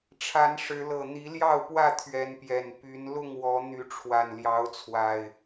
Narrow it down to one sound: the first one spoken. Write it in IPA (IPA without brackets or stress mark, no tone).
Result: ʈ͡ʂʰ